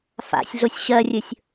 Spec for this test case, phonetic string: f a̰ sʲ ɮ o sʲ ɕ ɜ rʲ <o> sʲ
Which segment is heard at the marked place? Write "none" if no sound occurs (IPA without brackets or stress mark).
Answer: ɵ